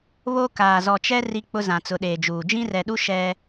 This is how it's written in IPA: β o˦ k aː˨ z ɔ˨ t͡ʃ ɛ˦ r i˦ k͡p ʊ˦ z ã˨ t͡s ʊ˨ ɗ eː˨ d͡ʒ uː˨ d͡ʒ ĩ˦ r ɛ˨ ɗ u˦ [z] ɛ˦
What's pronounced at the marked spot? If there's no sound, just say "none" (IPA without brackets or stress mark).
ʃ